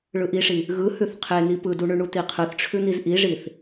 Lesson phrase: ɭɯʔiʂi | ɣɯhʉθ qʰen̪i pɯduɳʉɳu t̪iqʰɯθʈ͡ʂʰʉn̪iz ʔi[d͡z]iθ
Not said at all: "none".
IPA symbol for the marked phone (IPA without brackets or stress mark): ʐ